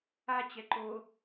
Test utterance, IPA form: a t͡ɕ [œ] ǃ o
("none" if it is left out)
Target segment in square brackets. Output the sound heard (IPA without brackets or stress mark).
ɛ